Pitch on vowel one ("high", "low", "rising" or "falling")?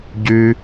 low